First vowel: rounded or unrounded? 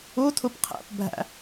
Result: rounded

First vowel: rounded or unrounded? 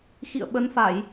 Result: unrounded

